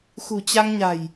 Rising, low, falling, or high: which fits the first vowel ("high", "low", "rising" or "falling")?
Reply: low